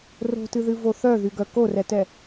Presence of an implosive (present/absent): absent